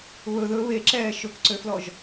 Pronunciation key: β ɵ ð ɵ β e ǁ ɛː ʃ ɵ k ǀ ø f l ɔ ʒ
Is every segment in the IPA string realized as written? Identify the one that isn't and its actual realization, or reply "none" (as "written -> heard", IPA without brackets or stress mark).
none